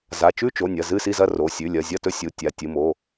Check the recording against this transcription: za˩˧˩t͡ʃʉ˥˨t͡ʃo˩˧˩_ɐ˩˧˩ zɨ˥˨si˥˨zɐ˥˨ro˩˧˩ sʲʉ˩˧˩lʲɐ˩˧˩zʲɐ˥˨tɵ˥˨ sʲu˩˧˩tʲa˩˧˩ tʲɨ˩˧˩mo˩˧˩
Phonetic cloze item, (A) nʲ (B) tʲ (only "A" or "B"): A